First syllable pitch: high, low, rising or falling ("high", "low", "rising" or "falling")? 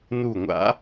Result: falling